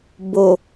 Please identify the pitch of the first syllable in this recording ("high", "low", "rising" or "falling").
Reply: low